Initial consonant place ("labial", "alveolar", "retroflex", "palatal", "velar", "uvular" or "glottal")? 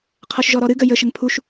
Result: uvular